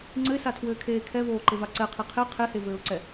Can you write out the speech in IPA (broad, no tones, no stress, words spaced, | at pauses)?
ŋ͡ǀɘɪ̯satʰwɘːkʰeː kʰɛvoːǃeva ǀɛqʰe qʰe qʰehevɘːʊ̯ǀɛ